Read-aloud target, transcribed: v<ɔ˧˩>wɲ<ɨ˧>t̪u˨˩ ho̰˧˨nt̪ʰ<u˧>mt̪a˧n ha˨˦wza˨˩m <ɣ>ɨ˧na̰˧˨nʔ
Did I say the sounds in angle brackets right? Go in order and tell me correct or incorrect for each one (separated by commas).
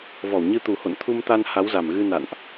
correct, correct, correct, correct